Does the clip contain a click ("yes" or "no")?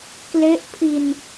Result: no